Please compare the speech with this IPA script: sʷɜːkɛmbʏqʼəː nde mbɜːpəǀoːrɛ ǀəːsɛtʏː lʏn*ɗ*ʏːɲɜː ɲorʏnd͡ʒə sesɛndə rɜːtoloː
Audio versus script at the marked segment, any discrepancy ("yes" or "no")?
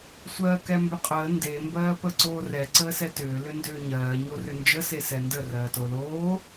yes